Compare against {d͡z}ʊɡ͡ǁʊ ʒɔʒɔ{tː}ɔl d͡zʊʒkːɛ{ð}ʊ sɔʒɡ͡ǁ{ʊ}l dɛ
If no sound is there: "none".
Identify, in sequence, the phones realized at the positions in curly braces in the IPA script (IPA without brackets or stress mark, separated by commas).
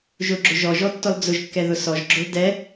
ʒ, tː, ð, ʊ